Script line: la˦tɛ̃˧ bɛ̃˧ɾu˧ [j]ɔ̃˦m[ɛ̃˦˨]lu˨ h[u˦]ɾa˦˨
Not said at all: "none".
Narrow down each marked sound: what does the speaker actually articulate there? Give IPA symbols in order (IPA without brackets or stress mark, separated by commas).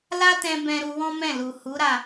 w, ɛ̃˦˨, u˨˦